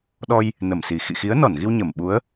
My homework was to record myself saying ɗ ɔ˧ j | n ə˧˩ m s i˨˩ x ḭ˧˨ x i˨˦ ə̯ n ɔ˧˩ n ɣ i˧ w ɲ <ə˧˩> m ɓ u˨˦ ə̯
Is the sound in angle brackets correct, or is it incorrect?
correct